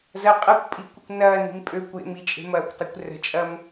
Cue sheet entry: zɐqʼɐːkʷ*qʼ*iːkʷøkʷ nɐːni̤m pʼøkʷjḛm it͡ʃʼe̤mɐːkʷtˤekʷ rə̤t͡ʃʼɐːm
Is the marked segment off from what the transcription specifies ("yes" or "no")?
yes